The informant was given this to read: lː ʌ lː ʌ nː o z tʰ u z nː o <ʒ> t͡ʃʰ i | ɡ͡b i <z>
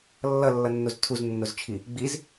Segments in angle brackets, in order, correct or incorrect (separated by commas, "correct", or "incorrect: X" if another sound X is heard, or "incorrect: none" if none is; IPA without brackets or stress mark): incorrect: z, correct